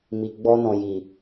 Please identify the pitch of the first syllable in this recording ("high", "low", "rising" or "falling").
low